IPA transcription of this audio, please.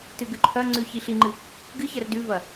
t ɨ ɡ ʉ ǃʰ ɐ ŋ͡ǀ ʉ ç i ɬ i ŋ͡ǃ ɨ | ɡ ɨ ç ɐ r d ʉ v ɐ

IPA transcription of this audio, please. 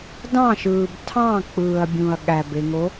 d ɑ̃ ʃ ɯː b tʰ ɑ̃ k͡p ɯː ɐ̯ bʲ ũ ɐ̯ ɠ æ b e ŋ o

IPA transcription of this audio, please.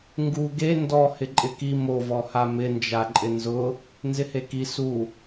ŋ ɡ u ɡ e n d ɔ h ɪ ǃʼ ɪ k i m o v ɔ h a m ɪ n d͡ʒ a ǃʼ ɪ n z ʊ | n z ɪ h e k i s u

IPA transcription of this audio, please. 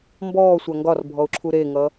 m b ɔː sʷ a ŋ ɡ ɒ r bʱ ɔ ʊ̯ ǁʰ u ɾ e ŋ ʌ

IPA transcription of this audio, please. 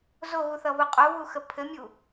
z o ɣ u θ ʌ β o qʼ o β u x ə pʰ ɘ mʲ u

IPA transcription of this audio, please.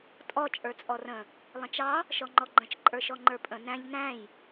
tʼ ɔ t͡ʃʼ ə˞ t͡sʼ ɔ r ə̃ | lˠ ə̃ t͡ʃ ɑ | ʃ ɔ ŋ͡ǃ ɔ ɡ͡ǃ ə̃ t͡ʃ ǃʼ ə˞ ʃ ɔ ŋ͡ǃ ə˞ pʼ ə̃ n æ̃ ʎ n æ̃ j

